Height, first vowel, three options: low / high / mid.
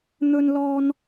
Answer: mid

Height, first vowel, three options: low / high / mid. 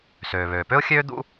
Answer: mid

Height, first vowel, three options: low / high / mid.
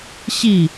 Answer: high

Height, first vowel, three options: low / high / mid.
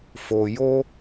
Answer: mid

